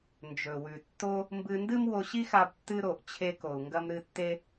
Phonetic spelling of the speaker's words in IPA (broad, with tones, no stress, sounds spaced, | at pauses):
n d͡ʒ ɵ˩ w ʉ˩ tː o˧ | m b ɨ˧ n d ɨ˥ m w o˧ ɕ i˥ x a˧ b tː ɨ˧ ɾ o˩ ʔ t͡ɕʰ e˧ k o˩ u̯ ŋ ɡ ɐ˧ m ɾ ɨ˧ tː e˧